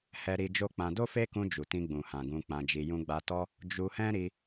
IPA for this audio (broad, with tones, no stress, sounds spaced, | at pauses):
h ɛ˧ ɾ i˧ d͡ʒ o˦ k͡p ã˧ d o˦ f e˦ k ũ˧ d͡ʒ u˨ t ĩ˧ ɡ͡b ũ˨ h ã˨ ɡ ũ˧ k͡p ã˧ d͡ʒ i˧ j ũ˦ ɡ͡b a˧ t ɔ˦ | d͡ʒ u˧ h ɛ̃˦ ɾ i˧